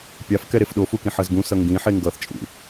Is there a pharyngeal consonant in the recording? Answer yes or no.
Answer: yes